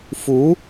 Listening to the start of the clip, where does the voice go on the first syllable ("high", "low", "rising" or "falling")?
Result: rising